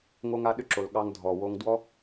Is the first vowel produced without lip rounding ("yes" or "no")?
no